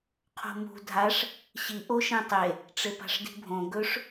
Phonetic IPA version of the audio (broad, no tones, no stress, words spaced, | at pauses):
qʰo̤mṳ dʱaʂ | ɕi ʔoʃẽtˤe | ʈ͡ʂepa̤ʂdi̤bʱõ ɡɵʂ